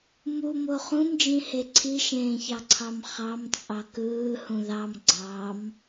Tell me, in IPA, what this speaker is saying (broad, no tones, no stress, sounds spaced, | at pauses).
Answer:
m u m o χ ũ m d͡ʒ ĩ h e ǀʰ i ʃ ẽː ç ɑ ǀʰ ɑ m χ ɑ m t͡sʼ ɑ k ɯː h ũ ð ɑ m ɡ͡ǀ ɑ m